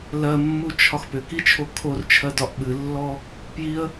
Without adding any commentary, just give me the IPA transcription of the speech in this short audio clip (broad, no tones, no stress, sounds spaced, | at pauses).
l ɜ mː u t͡ʃʰ ɒ x p ʏ k i t͡ʃʰ o kʰ o r t͡ʃʰ ɜ d ɒ ʔ ɓ ɨ lː ɔ | p j i ə̯